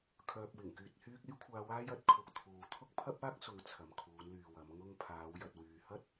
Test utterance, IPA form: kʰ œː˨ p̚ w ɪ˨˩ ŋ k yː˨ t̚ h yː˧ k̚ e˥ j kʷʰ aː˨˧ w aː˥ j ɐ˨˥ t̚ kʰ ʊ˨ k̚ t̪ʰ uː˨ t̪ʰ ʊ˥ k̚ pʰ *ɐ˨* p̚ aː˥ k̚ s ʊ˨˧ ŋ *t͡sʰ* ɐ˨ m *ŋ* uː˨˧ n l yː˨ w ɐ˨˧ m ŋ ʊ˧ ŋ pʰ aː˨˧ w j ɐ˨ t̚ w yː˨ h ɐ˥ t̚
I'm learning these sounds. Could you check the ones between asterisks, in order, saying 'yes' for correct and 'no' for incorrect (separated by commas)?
no, yes, no